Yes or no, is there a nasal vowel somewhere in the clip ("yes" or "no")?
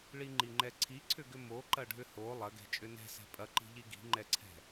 no